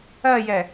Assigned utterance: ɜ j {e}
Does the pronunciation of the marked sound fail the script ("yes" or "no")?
yes